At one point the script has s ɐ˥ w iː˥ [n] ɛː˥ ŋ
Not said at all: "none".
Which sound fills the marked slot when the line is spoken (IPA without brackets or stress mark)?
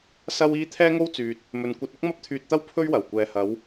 t̪ʰ